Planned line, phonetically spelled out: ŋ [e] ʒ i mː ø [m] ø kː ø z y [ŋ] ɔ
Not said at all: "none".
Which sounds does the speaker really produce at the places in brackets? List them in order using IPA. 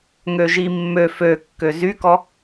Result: ø, f, k

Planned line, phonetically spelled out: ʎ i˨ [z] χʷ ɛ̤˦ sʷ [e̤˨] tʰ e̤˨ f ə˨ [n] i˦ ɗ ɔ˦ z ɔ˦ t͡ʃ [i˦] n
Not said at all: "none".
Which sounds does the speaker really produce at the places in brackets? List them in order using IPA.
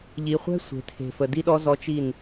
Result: none, e̤˨, d, i˦˨

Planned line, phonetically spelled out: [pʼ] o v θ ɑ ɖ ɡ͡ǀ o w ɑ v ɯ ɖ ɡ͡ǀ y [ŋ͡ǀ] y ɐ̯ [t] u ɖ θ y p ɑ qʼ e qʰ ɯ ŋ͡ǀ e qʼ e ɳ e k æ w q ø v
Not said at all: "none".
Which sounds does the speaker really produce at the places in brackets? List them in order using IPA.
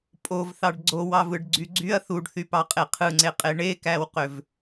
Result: pʼ, ɡ͡ǀ, θ

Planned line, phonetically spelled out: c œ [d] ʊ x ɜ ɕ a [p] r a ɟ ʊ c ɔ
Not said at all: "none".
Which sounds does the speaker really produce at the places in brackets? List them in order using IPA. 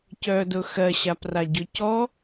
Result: d, p

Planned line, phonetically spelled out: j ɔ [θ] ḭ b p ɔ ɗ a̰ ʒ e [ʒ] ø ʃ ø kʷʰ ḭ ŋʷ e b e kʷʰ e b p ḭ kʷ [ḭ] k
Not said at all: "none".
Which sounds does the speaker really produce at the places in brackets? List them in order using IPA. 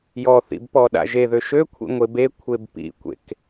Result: θ, ð, ḛ

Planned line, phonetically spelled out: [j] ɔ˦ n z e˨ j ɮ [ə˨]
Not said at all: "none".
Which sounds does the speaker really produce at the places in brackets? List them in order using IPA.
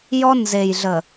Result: j, ə˨

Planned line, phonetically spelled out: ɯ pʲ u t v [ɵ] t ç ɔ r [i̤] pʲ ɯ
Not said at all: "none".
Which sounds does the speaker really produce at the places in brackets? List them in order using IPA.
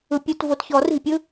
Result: o, i̤

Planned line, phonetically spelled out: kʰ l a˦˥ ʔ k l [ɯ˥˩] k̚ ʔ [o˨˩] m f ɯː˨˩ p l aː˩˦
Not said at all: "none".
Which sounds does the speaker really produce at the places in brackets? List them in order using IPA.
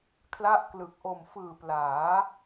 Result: ɯ˨˩, o˨˩

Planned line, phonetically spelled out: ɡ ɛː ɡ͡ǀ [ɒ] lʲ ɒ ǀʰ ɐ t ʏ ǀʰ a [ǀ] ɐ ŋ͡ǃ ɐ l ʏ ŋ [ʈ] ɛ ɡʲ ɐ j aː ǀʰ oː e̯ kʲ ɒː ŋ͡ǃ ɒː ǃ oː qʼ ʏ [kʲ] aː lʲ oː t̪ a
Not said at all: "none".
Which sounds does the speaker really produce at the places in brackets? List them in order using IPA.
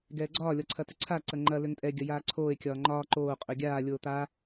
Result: ɒː, ǀ, tʼ, ɡʲ

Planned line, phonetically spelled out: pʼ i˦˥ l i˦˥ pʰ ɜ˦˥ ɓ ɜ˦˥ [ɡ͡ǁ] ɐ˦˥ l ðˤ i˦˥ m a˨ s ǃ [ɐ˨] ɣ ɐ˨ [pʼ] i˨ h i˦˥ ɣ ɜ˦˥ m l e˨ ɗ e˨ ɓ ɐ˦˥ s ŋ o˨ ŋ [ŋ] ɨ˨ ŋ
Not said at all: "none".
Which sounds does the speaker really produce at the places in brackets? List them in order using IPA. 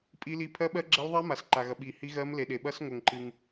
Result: ɡ͡ǁ, a˨, ɓ, ǃ

